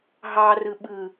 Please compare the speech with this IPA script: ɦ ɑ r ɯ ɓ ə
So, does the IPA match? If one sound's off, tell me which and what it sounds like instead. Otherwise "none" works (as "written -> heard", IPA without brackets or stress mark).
ə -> ɯ